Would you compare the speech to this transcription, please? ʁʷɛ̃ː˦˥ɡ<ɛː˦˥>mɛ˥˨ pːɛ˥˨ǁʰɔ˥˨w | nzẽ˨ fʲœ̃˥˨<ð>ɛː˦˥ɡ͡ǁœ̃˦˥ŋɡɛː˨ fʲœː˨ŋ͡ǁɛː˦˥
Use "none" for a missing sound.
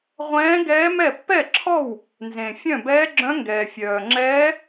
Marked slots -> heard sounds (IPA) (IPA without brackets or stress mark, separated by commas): ɛː˦˥, b